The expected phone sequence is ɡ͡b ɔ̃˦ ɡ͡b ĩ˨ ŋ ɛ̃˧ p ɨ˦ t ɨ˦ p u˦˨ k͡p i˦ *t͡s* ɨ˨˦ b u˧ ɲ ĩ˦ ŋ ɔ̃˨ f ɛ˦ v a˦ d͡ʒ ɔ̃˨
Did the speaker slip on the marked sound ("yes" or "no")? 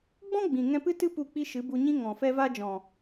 yes